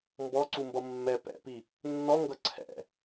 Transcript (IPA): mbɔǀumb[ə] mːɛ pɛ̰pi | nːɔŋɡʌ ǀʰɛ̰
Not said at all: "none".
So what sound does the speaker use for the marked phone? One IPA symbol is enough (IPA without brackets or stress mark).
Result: ʌ